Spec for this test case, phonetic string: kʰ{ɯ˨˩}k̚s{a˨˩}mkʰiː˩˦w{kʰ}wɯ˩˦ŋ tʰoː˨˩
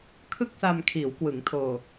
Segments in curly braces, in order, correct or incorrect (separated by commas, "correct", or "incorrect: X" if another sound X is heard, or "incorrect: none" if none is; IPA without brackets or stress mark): incorrect: ɯ˥˩, incorrect: a˧, incorrect: k